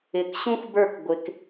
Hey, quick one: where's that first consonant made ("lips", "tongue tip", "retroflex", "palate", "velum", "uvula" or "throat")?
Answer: velum